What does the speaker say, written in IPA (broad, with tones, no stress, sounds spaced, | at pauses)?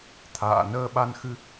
t̪ʰ a̰ː˧˨ n əː˧ ɓ a˧ n x ɨ˧